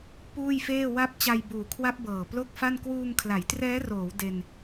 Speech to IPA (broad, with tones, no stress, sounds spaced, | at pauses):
p uː˥˩ j f eː˥˩ w a˥˩ p̚ t͡ɕ a˧ j b uː˨˩ kʰ w a˦˥ p̚ b ɤː˨˩ p l o˥˩ k̚ f a˥˩ n k w uː˧ ŋ kʰ l a˩˦ j t r ɛː˦˥ r oː˩˦ w d e˧ n